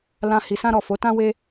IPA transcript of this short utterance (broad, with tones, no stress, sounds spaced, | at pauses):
l ã˧ h i˧ s ã˦ ɾ ɔ˦˨ f o˨˦ t ã˦ w e˦